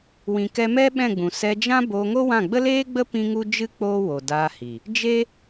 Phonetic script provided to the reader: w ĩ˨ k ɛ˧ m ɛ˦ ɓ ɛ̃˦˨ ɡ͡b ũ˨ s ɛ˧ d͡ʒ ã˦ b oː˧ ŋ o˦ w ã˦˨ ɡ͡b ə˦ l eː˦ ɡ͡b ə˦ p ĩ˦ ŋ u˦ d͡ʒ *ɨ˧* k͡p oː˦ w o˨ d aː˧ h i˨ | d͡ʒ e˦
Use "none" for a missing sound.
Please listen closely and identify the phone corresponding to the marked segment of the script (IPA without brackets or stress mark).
ɨ˦